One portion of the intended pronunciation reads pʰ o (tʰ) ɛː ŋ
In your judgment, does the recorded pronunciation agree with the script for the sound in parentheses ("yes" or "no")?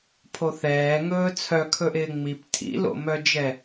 no